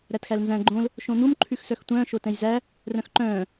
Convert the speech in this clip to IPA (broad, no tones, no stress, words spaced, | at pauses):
ɾætxælnzæ̃ ɡ͡ǃõl | ʃõn̪um ǃʰʉxsœxtʷœ̃ː ʃotɛ̃jzæ | rœ̃xǃœ̃ː